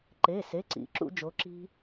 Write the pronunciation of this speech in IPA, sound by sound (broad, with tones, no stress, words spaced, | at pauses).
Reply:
ǃe˩˧˩se˩˧˩ǀḭ˩˧ ǁṵ˧˩˧d͡ʒo˩˧ ǁi̤˦